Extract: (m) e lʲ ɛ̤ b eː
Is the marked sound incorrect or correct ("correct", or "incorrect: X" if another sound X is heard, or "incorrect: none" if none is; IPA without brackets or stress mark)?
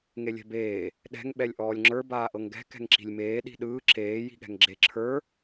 incorrect: ŋ